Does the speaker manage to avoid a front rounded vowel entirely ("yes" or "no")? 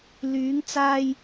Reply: no